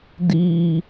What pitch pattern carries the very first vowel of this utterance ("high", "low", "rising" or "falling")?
low